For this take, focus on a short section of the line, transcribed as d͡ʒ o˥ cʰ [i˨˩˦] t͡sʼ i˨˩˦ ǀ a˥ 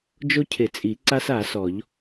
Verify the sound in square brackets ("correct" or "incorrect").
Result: incorrect